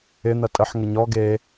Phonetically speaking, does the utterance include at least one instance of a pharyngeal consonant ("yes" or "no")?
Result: yes